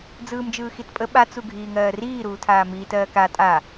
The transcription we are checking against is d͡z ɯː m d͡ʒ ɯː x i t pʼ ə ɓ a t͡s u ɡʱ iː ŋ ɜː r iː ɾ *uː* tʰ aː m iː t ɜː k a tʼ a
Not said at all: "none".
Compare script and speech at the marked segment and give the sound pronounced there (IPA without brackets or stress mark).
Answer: uː